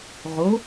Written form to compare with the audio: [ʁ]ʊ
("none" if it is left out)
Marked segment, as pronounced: ʁ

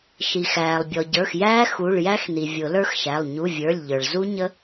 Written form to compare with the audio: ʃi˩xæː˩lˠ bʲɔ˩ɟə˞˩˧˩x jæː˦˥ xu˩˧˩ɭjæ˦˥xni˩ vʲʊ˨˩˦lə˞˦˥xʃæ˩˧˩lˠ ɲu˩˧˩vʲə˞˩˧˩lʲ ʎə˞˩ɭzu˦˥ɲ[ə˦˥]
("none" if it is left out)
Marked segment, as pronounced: ə˦˥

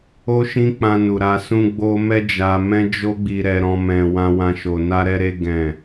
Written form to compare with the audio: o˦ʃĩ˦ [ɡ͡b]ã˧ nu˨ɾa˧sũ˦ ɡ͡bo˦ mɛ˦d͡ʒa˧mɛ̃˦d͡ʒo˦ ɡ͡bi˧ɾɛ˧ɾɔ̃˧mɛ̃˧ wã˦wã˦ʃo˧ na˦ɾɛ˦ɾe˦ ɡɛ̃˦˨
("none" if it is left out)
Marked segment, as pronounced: k͡p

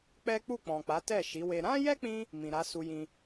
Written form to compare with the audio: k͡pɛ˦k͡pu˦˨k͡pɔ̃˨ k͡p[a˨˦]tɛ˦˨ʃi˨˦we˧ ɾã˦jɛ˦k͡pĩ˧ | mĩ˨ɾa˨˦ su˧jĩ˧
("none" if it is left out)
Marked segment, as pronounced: a˨˦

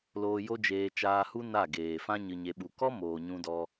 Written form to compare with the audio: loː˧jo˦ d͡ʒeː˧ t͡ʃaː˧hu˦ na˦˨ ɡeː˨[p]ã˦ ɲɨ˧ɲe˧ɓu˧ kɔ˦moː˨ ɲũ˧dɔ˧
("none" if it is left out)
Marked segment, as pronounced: f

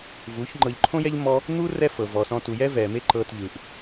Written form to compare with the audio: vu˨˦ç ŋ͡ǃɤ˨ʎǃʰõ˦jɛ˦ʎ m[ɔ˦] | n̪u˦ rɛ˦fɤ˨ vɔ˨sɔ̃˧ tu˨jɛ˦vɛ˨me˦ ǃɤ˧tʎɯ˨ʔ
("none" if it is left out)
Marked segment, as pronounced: ɔ˦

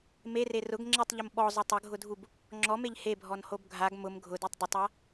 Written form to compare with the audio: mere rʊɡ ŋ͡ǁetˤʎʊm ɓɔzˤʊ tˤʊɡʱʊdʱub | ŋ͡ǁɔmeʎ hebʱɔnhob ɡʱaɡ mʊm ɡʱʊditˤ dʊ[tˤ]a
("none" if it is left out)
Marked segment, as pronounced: tˤ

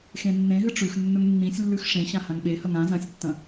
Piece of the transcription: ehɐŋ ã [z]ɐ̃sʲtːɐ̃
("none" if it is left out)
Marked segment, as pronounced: z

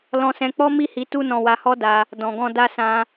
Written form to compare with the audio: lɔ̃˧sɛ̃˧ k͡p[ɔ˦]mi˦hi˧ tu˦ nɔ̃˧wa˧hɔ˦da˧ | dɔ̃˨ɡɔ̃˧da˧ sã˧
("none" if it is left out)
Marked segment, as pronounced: ɔ˦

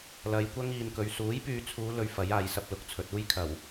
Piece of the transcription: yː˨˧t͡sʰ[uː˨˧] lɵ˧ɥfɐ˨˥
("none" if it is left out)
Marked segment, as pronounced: uː˨˧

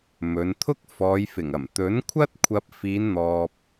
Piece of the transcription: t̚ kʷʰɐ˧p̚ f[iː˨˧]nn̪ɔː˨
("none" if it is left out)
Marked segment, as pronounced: iː˨˧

